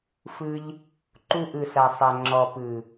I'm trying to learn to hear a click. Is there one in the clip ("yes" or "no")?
yes